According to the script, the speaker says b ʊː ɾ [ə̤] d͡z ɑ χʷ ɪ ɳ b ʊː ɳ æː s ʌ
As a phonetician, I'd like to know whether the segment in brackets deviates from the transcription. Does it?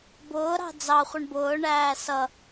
yes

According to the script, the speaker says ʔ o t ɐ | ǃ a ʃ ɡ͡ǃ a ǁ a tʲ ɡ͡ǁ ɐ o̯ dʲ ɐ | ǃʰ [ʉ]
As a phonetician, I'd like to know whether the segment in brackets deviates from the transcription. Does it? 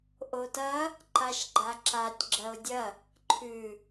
no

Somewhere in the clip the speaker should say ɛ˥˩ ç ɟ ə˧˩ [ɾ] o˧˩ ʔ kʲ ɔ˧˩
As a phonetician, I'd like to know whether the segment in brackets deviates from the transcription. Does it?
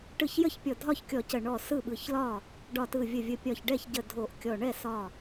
yes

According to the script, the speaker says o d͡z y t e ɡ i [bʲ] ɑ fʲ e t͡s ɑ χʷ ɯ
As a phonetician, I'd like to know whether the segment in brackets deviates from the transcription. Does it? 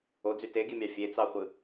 yes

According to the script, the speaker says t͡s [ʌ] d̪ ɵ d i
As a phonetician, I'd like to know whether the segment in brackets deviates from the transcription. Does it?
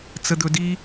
yes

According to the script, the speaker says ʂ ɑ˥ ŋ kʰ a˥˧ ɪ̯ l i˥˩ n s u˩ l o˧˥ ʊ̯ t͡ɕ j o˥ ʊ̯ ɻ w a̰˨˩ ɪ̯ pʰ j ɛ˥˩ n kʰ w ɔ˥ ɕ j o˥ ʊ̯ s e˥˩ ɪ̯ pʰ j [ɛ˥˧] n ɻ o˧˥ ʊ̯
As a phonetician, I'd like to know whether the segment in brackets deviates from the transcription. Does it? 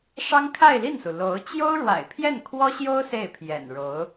yes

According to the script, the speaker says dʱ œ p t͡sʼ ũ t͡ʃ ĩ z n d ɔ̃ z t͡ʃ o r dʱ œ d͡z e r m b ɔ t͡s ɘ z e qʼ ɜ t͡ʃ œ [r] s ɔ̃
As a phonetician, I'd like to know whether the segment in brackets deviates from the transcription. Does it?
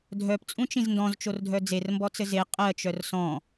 no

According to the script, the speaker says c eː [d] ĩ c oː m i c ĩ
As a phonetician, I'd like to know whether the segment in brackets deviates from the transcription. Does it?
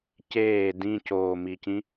no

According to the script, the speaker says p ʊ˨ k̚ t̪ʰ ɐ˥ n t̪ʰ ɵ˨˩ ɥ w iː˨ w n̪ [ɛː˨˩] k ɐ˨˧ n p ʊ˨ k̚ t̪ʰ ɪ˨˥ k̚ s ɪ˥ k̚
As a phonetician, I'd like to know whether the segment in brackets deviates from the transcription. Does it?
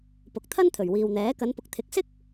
yes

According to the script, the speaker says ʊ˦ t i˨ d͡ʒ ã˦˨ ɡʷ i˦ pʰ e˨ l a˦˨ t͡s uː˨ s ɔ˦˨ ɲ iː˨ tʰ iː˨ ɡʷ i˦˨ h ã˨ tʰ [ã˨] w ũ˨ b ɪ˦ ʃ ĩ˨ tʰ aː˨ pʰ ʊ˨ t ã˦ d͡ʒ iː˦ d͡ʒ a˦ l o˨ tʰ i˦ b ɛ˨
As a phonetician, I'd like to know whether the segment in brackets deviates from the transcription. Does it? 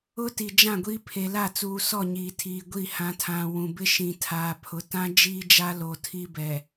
no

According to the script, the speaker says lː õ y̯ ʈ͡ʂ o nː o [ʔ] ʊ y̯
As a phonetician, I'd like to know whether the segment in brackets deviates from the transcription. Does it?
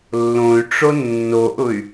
no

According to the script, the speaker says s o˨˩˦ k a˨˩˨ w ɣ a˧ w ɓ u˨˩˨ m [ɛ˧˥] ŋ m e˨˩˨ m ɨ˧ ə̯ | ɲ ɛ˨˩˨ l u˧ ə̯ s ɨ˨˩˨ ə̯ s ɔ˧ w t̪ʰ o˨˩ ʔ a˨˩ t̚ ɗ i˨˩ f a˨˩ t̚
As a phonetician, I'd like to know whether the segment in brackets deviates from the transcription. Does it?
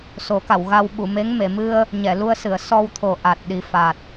yes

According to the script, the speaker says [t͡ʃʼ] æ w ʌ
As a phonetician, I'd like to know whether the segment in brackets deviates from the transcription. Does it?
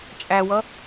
no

